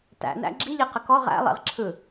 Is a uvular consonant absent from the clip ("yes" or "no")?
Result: no